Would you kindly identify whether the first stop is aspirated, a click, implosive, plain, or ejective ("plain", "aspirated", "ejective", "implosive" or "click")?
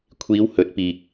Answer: aspirated